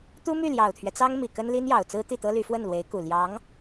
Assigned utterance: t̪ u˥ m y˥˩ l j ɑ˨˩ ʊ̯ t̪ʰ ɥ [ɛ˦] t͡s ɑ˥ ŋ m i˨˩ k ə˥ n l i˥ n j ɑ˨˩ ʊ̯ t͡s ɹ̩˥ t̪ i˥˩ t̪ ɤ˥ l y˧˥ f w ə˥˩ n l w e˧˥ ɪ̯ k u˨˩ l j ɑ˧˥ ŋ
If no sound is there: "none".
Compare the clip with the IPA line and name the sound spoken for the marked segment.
ɛ˦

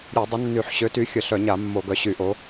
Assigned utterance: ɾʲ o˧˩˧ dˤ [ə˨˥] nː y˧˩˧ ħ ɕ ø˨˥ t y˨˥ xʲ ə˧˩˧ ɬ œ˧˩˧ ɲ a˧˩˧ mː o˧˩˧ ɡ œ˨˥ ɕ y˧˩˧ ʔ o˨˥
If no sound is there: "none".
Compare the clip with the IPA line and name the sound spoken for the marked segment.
ə˨˥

